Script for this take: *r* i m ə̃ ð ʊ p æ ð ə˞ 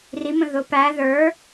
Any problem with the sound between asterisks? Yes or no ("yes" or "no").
no